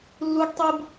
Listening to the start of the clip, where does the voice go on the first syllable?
high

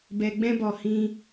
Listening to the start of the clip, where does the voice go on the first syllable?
low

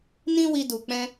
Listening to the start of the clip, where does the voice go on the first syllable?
high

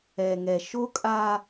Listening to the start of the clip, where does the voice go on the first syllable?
low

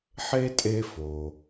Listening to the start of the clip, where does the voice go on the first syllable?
high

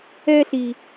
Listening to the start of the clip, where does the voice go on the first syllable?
high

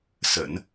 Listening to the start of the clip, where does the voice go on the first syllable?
low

